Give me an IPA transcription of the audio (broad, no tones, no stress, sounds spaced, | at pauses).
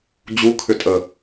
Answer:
d͡ʑ u kʰ ʏ tʼ ə